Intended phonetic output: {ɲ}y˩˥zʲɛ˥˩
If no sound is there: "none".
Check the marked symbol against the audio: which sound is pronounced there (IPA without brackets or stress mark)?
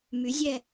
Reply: m